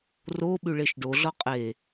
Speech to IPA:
r o ɓ ʉ ɭ e ʃ ɖ o ɮ ɔ qʼ e

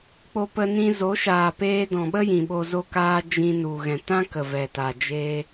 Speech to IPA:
k͡p o˧ p ə˧ n ĩ˧ z o˨˦ ʃ aː˨ p eː˧ d ɔ̃˨ ɓ ə˦ j ĩ˨ ɓ o˧ z o˦ k aː˦ d͡ʒ ĩ˧ n u˨ ɣ ɛ̃˨ t ã˦ k ə˨ v ɛ˨ t a˨ d͡ʒ eː˧

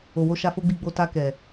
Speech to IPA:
o˨ w o˧ ʃ a˧ f o˦ ɡ͡b i˦˨ ɡ͡b o˧ t a˧ k ɛ˨

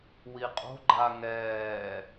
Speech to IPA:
w i qʼ o̤ ɡ͡ǃ a ŋ ɛː

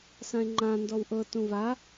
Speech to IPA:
s ã e̯ ŋ͡ǃ ã n d ɔ w ʔ ɤ t ũ v a

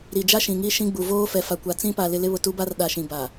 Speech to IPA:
ɾ i˨ d͡ʒ a˦ ʃ ĩ˨ ŋ i˦ ʃ ĩ˦ ɡ͡b u˨ v oː˦ f ɛ˨ f a˨ kʷ a˨ t͡s ĩ˦ p a˨ l ɪ˦ l ɪ˦ β ʊ˨ t u˦ b a˦ r ɗ a˨ ʃ ĩ˨ b a˨

